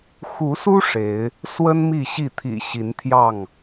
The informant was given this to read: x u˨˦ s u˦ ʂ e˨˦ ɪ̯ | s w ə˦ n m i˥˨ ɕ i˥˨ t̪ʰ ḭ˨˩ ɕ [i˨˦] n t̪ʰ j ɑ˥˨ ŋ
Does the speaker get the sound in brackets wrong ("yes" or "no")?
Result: no